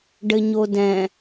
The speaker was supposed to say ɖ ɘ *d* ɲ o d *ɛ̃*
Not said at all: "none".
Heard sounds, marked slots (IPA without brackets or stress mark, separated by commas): none, ɛ̃